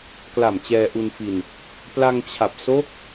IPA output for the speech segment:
k l a˨˩ m t͡ɕ ɛː˧ ʔ u˧ n f i˧ n | p l a˧ ŋ t͡ɕʰ a˨˩ p̚ s o˦˥ k̚

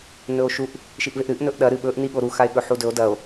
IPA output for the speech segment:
n ɵ o̯ ʃ u ʔ | ʃ i ʔ v e ʔ ɾ ɨ ʔ n ɵ ʔ ɗ ɐ ɾ ɨ ɓ ɵ ʔ n i ɠ o ɾ u x a e̯ ɠ ɵ ħ u d ɵ o̯ d ɐ o̯

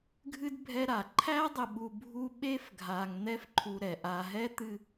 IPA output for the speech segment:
ɡʱ ɨ˥ d bʱ ɛ˦ ɾ a˩ ǃʰ æ˥ dˤ ɘ˨ ɓ u˨ bʱ u˦ ɓ e˥ f ɡʱ a˨ ŋ n̪ ɛ˥ f ǃʰ u˨ ɾ ɛ˩ ʔ a˨ ɦ ɛ˥ t̪ ɨ˥

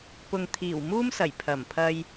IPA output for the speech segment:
p ʊ˨ ŋ t̪ʰ iː˨˩ w m uː˥ m s ɐ˨˩ j pʰ ɐ˨˩ m pʰ ɐ˧ j

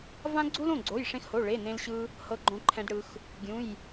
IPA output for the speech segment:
v ã˥ ɡ͡ǀ u˥ l õ˧˥˧ ɡ͡ǀ o˧˥˧ j ʂ ẽ˥ x h o˧˥˧ ɭ e˧˥˧ n ẽ˥ l ɕ ɯ˥ | h ɤ˥ ɡ͡ǃ õ˥ ǃʰ ɛ̃˥ d ɽ ɯ˥ x | ɡʲ ũ˧˥˧ j

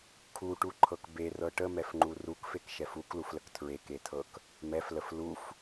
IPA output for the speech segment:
kʰ u ʈ u ǃʰ ɤ k b e r ɤ ʈ ə m ɛ f ŋ͡ǃ u r u k f e k ʃ ɛ f u k l u f l ə k tʰ ɹ e k e tʰ ɤ k | m ɛ f l ə f l u f

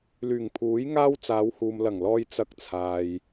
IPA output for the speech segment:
l yː˨˩ ŋ pʰ uː˨˥ j ŋ aː˥ w t͡s aː˨˧ w h uː˨ m l ɐ˨˩ ŋ l ɔː˧ j t͡s ɐ˧ k̚ t͡sʰ aː˨ j

